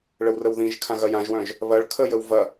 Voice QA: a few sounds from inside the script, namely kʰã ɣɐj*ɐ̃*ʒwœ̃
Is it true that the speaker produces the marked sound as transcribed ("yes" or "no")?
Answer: no